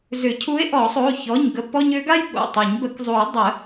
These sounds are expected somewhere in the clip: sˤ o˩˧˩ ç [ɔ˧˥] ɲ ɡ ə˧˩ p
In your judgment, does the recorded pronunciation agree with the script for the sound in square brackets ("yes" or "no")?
no